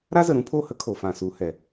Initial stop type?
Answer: aspirated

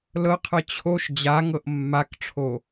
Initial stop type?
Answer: aspirated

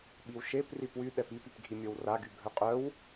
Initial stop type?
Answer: implosive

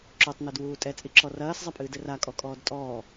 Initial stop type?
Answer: click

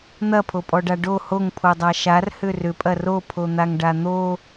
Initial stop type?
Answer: aspirated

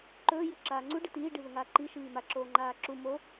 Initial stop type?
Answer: click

